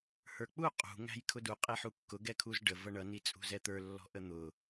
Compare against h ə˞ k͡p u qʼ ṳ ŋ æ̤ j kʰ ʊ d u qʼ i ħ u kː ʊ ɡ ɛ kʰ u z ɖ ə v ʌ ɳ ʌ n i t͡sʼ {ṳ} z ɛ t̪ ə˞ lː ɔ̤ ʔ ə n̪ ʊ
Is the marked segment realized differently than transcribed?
no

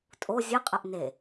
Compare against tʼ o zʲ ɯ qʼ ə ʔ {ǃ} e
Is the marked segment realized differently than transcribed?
yes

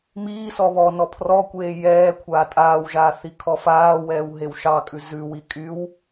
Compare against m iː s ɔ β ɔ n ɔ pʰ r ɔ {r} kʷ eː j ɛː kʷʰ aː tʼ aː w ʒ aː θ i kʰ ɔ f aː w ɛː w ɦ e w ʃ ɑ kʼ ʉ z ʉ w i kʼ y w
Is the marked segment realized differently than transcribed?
yes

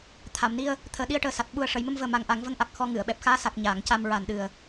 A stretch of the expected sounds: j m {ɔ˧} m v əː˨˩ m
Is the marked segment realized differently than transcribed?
yes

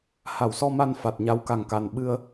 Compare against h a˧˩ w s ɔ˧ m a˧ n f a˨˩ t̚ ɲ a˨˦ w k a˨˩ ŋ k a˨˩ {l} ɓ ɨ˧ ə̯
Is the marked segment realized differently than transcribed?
yes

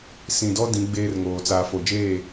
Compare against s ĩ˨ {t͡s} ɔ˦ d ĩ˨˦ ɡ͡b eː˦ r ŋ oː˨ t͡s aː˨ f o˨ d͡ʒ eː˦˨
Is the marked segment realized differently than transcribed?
yes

